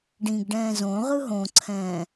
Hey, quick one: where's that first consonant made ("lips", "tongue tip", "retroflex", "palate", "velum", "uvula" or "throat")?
retroflex